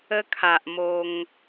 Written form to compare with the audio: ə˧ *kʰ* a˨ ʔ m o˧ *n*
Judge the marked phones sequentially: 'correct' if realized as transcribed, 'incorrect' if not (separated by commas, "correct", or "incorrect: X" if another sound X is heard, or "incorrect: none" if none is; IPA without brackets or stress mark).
correct, incorrect: ŋ